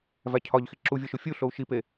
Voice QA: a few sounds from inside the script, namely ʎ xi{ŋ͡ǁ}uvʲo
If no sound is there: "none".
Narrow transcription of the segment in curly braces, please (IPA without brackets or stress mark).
ǁ